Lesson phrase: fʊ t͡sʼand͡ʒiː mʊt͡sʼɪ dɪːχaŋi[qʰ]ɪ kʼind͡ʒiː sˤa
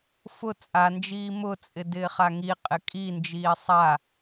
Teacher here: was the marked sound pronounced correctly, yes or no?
no